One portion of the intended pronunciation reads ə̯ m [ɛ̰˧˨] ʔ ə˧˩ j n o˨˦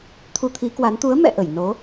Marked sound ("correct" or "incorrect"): correct